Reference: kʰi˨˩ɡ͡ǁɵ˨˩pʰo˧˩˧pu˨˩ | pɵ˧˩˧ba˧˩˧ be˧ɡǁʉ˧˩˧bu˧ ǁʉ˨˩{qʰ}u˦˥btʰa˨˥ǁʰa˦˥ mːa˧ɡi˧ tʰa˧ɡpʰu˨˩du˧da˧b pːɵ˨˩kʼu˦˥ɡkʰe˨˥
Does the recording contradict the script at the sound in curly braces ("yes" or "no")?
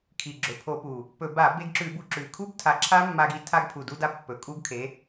yes